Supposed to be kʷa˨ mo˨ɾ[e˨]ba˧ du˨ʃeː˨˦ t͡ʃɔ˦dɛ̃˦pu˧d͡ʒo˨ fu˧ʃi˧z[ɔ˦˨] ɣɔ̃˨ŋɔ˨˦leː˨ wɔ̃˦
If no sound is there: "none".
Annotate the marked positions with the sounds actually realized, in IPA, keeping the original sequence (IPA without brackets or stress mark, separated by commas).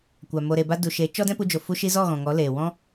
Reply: e˨, ɔ˦˨